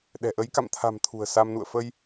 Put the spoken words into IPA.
ɗɛ̤˨˩ʔə˨˦j ka̰˧˨mt̪ʰa̤˨˩m t̪ʰṳ˨˩ə̯sa˧mnṵ˧˨ə̯ fə˧j

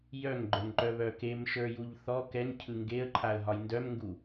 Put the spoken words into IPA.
jœŋɡ͡ǃə˞ŋǃœβœ kemʃə˞juʎ θɔ kɛŋcʰɯ ŋɡeə̯ǃʰaə̯ɦɒj ndœmŋɡu

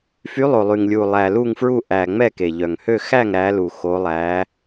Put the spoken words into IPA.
fy˨˦lˠo˨˩lˠy˨˩ŋlʲu˨˩ lˠæ˨˩ lu˥˨ŋfɹu˥˨ ʔæ˨˩ ŋ͡mɛ˥˨ke˨˩ ʎœ˨˩ŋhø˥˨ xæ˥˨ŋ ɾæ˨˦lu˨˩ xo˨˦lˠæ˨˦

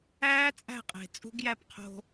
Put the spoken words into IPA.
æː˦t͡sʼæ̤˦˨qʼe̤˨ t͡sʼṳ˦ɡjæ˦pqʰo̤˦

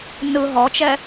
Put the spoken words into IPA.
nɯ ɦɔt͡ʃɛ

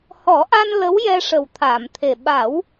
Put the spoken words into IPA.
hɔ˨˩˦ʔa˧n lə˧˥wjɛ˧ ʂə˨˩wt̪ʰaː˨˩˨m t̪ʰe˨˩ ɓa˨˩˦w

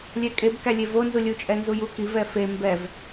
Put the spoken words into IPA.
lʲɛkʼeb kælʲevo nzulʲu t͡ʃʼɛnzuju kiv ɛfe mbɛv

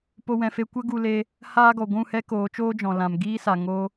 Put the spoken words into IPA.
po˦wɛ̃˧fe˦ kʷə˦ɡu˧leː˧ | haː˦ɡɔ˨ ɡʷũ˦˨hɛ˦ koː˨˦t͡ʃoː˦d͡ʒɔ̃˨lã˨m ɡiː˦sa˨ ŋoː˧

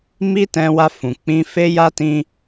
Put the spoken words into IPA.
mi˦tɛ̃˧wa˧fũ˨ k͡pĩ˧fe˦ja˦tĩ˦

